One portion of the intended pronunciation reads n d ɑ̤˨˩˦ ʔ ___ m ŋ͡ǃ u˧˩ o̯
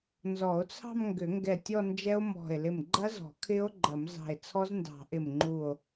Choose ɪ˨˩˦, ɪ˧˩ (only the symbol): ɪ˧˩